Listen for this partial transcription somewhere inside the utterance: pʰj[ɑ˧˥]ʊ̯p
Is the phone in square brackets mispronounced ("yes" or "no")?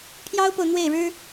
yes